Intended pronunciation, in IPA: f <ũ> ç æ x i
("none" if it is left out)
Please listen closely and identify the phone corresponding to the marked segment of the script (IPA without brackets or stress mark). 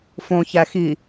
õ